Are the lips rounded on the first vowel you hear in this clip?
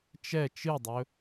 no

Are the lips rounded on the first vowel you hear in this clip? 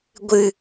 no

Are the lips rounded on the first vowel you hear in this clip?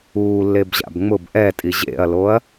yes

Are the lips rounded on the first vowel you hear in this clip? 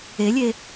no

